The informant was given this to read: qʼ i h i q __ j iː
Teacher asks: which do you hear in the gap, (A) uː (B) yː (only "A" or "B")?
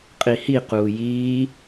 A